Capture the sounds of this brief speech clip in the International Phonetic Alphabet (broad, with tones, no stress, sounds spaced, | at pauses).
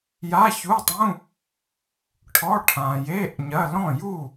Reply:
j a˧˥˧ ç u˧˥˧ tˤ ũ˧˥˧ | ʈʰ ɔ˧˥˧ ʈʰ ã˨ j e˧˥˧ ʔ ɲ ɐ˧˥˧ l ɔ̃˥˨ j u˥˨